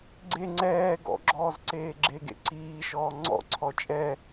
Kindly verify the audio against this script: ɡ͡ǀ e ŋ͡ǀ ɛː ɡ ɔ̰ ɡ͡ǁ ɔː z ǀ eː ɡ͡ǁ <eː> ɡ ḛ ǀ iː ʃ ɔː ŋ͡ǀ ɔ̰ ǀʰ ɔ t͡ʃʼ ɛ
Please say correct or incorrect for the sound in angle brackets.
incorrect: e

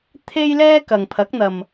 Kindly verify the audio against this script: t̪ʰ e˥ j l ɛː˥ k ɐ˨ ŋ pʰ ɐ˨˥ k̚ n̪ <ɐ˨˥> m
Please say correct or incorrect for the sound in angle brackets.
incorrect: ɐ˨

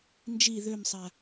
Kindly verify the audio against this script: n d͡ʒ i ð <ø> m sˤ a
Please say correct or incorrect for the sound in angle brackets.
correct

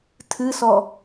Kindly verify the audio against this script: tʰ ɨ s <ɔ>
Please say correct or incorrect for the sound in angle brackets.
correct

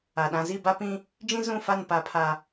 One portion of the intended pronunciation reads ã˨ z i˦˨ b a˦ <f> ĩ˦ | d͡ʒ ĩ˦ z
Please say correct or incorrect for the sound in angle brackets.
incorrect: p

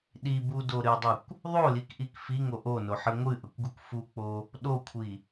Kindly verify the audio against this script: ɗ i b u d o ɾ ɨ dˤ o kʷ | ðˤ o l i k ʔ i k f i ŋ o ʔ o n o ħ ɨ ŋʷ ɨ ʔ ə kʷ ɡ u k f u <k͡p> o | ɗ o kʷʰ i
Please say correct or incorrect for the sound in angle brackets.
correct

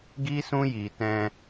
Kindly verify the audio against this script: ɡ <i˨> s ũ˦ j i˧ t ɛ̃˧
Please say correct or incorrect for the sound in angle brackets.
incorrect: i˦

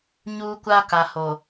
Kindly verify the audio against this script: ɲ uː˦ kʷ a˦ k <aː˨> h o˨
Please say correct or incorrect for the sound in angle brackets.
incorrect: a˨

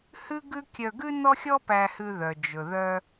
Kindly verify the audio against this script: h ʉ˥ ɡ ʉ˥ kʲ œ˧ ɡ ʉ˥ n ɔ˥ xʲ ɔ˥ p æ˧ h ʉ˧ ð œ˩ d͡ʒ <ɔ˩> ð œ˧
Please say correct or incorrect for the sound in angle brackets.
incorrect: ɵ˩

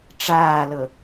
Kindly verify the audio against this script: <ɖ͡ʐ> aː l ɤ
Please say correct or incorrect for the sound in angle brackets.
incorrect: ʈ͡ʂ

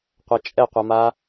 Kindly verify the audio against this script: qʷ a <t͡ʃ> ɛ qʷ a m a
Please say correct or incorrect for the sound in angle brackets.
incorrect: t͡ʃʼ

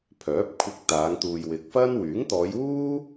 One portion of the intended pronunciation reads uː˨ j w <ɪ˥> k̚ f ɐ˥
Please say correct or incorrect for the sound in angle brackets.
incorrect: ɪ˨˥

